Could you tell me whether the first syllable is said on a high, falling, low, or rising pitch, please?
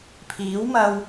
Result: rising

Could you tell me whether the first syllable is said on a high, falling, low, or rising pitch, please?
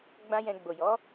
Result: high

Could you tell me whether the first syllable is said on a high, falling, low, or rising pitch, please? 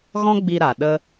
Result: high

